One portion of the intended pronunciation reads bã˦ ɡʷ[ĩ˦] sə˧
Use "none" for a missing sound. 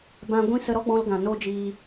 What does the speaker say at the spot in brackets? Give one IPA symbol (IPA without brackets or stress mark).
ĩ˦